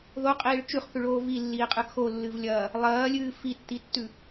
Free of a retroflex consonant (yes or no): no